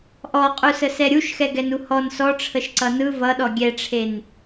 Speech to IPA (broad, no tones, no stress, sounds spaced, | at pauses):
ʔ ɔ qʼ u s ə s ɛ ɾʲ u ʃ x ɛ ɡ ɛ n u h ɔ n s ɔ ʈ͡ʂʰ ə ʃ ǀ ʌ n ɯ v ʌ ɗ ɔ ɡʲ ɛ ʈ͡ʂʰ e n